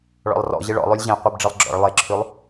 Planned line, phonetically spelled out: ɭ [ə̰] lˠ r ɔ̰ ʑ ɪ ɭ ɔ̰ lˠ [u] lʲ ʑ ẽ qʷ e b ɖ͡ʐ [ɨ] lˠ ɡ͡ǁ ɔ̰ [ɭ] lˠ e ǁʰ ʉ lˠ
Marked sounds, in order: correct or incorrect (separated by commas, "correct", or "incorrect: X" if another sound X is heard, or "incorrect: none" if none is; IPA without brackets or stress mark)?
incorrect: ɔ̰, incorrect: ʉ, correct, correct